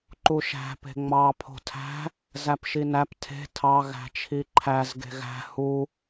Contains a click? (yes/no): yes